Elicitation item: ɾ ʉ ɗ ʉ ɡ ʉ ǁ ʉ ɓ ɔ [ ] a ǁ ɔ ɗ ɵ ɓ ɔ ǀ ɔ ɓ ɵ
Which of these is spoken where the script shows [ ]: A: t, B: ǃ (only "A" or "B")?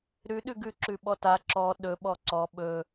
A